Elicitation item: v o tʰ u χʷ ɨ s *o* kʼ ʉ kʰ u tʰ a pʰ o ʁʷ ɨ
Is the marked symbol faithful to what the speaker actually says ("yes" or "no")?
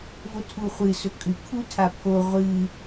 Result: no